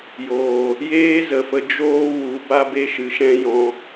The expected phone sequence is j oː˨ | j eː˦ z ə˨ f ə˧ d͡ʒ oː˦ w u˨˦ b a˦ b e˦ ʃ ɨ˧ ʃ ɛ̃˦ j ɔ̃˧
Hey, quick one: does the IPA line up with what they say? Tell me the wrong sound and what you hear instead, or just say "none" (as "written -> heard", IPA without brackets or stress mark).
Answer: none